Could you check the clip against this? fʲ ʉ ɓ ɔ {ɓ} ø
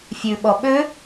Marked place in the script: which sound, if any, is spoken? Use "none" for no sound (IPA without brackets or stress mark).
ɓ